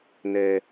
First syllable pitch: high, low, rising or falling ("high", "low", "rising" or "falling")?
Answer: low